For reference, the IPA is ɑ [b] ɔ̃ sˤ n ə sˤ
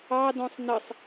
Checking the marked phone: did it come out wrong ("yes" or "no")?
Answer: yes